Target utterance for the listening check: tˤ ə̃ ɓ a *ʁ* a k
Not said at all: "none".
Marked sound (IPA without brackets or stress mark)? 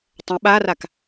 r